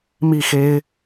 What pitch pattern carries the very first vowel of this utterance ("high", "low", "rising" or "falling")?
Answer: falling